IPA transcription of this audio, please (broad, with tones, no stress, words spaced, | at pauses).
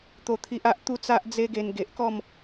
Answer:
t̪o˥˧t̪ʰi˦ʔa˦ʔ t̪u˥˧t͡sa˦ʔ d͡ze˦ɡe˧n ɡe˨ʔkɔ˥˧m